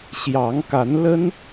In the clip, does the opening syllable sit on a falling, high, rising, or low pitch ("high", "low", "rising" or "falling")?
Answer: rising